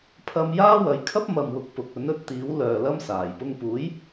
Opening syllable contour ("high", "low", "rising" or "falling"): high